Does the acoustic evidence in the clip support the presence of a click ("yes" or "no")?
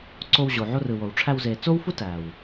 yes